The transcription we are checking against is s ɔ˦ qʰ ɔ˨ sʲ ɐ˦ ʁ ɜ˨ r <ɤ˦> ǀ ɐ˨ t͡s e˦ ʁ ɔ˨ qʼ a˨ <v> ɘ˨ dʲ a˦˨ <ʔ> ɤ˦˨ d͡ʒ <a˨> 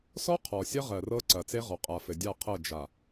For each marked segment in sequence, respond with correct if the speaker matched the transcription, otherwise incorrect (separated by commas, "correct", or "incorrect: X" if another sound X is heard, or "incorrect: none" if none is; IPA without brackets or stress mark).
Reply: correct, incorrect: f, incorrect: qʰ, correct